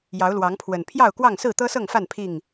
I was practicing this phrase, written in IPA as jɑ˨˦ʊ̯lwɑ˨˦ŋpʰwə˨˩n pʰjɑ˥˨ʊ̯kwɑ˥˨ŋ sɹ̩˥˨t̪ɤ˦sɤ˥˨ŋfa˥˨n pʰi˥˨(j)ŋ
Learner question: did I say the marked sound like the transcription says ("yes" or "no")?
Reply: no